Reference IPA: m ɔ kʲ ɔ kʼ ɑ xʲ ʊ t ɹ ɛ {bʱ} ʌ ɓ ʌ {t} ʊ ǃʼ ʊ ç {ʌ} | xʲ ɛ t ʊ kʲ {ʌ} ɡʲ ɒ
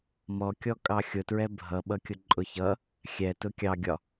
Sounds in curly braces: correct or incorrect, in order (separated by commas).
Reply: correct, incorrect, correct, incorrect